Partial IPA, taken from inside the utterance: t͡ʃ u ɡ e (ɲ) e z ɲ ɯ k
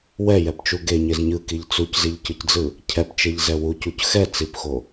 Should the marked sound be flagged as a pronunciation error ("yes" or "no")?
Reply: no